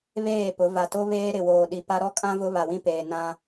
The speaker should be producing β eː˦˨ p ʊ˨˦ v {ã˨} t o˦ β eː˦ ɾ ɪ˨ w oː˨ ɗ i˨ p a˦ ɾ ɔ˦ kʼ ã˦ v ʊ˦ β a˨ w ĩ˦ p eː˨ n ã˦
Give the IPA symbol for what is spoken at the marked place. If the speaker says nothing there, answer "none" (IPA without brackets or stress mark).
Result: a˨